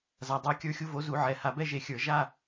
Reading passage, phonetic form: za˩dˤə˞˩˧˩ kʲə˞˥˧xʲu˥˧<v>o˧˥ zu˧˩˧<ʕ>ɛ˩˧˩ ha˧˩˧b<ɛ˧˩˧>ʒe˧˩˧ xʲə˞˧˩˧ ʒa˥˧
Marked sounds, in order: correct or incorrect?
correct, correct, incorrect: ɛ˥˧

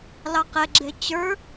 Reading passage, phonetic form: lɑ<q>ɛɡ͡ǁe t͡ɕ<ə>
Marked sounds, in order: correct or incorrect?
correct, incorrect: ə˞

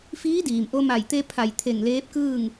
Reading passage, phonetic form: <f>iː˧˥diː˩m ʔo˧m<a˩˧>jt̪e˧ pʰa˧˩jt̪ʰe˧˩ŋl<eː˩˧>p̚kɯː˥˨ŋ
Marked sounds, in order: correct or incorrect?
correct, incorrect: a˧˩, incorrect: eː˧˥

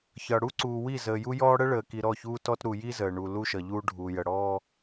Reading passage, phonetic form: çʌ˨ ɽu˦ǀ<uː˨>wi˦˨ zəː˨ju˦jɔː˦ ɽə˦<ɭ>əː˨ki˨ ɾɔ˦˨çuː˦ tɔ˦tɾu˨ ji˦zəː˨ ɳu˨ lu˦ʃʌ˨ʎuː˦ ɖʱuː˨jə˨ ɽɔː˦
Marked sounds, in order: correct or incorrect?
correct, correct

